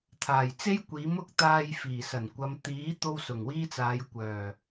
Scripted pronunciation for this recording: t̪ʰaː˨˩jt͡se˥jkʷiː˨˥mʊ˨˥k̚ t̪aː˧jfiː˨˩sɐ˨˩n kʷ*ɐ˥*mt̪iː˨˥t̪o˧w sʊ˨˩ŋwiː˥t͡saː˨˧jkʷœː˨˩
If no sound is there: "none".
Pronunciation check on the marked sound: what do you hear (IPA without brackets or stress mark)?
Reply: ɐ˨˧